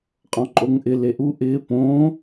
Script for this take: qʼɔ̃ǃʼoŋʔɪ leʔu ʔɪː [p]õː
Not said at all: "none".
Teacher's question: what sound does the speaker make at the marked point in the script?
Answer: p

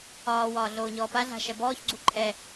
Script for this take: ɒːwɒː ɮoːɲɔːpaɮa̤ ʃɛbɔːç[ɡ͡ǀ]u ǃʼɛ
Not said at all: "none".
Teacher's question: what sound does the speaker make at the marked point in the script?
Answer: ɡ͡ǀ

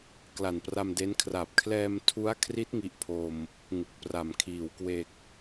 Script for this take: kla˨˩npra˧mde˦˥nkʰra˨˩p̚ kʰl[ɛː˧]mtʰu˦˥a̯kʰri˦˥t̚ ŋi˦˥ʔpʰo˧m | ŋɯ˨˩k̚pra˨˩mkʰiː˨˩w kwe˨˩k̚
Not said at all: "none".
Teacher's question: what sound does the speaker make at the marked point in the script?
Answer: ɛː˧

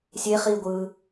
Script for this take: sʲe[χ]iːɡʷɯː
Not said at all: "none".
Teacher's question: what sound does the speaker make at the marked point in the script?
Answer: χ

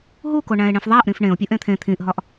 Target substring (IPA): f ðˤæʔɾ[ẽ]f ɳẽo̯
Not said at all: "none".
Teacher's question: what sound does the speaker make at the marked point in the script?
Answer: ĩ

